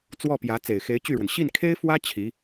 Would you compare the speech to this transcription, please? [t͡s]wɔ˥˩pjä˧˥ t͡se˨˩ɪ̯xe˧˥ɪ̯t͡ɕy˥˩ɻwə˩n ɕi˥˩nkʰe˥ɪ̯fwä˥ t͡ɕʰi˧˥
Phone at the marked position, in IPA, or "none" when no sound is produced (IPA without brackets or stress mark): t͡s